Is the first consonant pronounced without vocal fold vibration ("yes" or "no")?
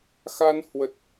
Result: yes